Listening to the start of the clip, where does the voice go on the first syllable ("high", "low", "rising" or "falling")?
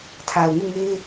low